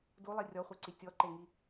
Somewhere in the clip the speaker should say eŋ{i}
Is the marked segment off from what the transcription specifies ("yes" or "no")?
no